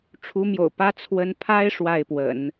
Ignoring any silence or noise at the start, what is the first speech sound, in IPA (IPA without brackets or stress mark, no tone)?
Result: ʈ͡ʂʰ